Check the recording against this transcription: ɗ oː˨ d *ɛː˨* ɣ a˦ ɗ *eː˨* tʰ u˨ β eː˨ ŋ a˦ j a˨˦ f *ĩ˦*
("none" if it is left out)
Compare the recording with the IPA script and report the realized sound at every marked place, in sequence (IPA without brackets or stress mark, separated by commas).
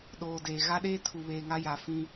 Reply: eː˨, eː˦, ĩ˦